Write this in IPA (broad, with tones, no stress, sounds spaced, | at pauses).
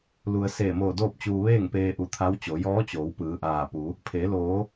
l u˩ ə̯ s eː˧˩ m oː˧˩ d oː˥˨ p̚ t͡ɕ uː˧ ʋ eː˥˨ ŋ p eː˧ ʔ u˧˩ t̪ʰ a˧˥ w t͡ɕ o˩˧ j ɔː˧˥ t͡ɕ oː˩˧ w p ɯː˩˧ ʔ aː˧˩ p u˩˧ | pʰ eː˩˧ l oː˩˧